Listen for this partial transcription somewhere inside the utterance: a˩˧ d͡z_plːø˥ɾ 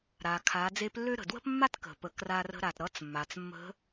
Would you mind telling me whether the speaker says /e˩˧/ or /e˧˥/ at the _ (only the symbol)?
e˧˥